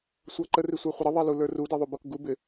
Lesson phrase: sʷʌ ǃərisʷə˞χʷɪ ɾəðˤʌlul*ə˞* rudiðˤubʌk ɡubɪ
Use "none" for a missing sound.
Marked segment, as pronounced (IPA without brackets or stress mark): ə˞